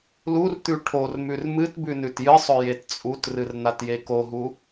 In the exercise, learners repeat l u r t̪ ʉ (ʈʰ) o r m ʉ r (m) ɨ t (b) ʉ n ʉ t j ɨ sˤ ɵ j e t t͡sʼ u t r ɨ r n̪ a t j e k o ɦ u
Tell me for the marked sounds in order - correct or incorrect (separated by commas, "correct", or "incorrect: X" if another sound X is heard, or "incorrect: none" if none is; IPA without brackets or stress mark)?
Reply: correct, correct, correct